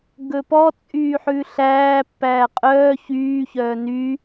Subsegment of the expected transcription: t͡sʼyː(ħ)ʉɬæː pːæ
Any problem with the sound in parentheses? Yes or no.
no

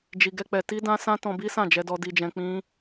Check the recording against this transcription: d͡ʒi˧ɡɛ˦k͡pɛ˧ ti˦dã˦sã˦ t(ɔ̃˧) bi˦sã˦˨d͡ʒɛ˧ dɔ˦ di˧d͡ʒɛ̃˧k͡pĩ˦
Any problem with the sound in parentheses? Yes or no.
no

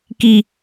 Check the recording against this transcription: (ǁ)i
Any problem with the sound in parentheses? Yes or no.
yes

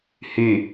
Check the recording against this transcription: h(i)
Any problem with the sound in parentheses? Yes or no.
yes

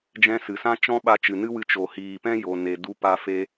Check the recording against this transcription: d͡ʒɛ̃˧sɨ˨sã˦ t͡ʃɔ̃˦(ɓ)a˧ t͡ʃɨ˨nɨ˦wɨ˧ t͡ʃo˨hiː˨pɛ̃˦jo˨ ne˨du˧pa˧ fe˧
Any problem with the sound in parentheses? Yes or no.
no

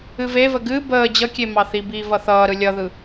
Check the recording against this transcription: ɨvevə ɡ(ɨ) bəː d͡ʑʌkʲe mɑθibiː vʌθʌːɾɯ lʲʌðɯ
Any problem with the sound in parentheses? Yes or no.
no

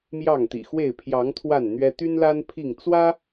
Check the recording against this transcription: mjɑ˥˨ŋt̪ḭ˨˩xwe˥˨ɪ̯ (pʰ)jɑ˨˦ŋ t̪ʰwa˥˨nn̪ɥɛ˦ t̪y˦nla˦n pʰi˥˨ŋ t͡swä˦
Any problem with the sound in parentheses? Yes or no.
no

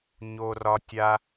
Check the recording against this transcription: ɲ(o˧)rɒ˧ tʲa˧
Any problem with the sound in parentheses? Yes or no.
no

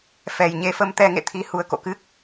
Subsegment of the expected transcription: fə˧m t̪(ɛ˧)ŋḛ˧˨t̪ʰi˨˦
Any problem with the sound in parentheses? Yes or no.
no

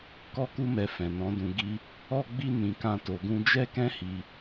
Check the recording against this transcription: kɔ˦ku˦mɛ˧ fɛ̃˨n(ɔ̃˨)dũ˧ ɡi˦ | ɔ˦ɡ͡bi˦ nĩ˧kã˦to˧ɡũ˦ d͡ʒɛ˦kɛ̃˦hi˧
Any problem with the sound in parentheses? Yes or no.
yes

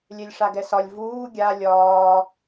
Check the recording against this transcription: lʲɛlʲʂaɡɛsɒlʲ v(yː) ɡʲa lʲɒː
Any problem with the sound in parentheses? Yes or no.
yes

